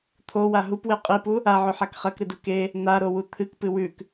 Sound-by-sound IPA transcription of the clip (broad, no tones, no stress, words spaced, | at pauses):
t̪ʰowa ɦupwe qʼipu | aʕɵħak χɐkɾɨdu ke | n̪aɾowu t̪ʰɨkpɨ wʉk